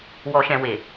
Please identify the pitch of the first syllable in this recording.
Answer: low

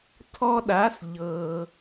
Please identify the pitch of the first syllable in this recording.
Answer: high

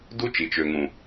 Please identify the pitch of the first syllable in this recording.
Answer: high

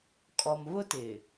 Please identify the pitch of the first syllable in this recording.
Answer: low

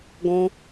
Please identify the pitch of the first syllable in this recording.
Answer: high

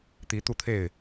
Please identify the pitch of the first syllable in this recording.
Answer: rising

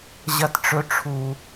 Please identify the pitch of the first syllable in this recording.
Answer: high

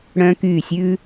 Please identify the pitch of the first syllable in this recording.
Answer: high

